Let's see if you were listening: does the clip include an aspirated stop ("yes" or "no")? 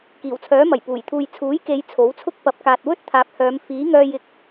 yes